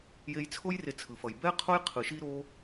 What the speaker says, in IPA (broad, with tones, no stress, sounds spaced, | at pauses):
j e˧ j t͡sʰ o˦ j r e˧ t͡sʰ ɯ˨ f ʌ˨ j b ɛ˦ qʰ o˦ j qʰ ɯ˨ ʃ i˦ ɾ o˦